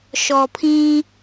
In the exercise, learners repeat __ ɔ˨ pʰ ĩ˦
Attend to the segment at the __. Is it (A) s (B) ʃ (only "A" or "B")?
B